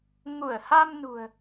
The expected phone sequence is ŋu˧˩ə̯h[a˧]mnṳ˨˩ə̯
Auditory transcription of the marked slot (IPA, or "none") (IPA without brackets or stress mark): a˧